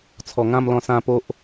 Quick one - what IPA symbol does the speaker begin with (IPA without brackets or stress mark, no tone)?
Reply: t͡sʰ